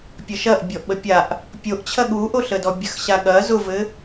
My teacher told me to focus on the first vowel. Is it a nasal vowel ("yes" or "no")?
no